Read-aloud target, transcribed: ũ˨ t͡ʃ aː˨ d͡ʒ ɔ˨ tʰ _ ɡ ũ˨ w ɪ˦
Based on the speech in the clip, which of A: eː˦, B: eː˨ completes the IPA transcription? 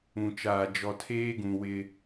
A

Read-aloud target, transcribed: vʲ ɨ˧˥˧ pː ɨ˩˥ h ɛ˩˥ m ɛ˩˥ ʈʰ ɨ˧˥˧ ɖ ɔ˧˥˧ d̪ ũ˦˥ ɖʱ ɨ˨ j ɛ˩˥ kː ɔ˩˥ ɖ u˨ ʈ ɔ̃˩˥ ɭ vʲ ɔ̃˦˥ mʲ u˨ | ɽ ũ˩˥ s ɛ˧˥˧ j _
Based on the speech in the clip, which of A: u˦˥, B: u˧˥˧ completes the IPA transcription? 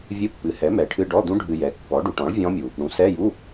B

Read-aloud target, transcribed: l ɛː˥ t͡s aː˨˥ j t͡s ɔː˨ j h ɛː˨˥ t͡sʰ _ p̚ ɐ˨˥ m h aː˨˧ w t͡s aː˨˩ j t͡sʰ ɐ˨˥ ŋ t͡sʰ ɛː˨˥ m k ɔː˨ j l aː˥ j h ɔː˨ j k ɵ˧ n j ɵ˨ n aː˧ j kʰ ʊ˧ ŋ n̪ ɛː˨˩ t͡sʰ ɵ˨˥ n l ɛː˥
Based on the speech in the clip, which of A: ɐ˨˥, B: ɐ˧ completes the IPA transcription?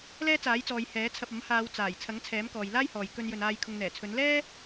B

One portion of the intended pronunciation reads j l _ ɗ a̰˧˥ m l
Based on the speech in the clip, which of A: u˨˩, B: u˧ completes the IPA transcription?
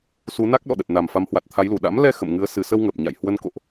A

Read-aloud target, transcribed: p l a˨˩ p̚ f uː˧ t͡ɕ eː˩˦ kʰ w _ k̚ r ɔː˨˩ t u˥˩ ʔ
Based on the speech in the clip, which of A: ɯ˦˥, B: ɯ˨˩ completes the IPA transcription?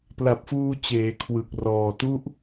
B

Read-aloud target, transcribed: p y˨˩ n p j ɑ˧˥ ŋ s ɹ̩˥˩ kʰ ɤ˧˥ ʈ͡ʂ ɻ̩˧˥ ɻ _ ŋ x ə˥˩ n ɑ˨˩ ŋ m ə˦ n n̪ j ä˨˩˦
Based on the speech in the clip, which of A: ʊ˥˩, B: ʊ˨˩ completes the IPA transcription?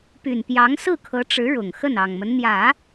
B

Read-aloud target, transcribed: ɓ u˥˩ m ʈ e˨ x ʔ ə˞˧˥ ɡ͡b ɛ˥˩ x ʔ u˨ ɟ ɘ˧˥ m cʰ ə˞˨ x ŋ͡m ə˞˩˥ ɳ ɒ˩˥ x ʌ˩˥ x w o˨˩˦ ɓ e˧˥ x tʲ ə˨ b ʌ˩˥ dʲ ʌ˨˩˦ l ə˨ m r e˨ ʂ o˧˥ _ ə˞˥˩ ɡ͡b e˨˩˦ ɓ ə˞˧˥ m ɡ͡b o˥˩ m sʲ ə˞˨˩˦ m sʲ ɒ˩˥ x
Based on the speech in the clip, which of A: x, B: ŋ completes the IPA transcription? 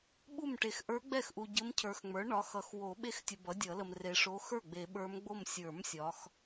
A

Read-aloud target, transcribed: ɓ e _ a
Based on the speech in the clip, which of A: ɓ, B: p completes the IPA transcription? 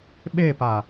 B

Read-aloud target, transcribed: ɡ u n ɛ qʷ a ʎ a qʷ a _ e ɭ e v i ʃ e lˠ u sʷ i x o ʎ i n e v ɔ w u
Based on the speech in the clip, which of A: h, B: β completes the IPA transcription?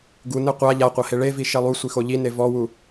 A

